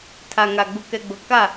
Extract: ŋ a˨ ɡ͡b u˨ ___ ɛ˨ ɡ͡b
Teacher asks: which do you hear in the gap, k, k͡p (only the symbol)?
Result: k